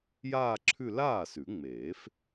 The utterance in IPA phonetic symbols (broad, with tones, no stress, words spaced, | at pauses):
jaː˥˧ǁʰʉ˥˧ laː˥˩sʉ˨˩˦ŋ͡meː˨˩˦f